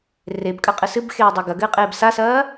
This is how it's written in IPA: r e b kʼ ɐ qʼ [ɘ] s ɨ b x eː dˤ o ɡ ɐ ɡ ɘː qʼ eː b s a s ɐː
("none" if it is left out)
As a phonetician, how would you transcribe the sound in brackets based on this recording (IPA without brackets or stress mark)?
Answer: ɘ